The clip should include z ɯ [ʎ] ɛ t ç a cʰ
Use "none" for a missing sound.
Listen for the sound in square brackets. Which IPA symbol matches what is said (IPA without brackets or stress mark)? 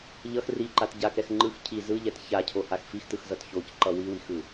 ʎ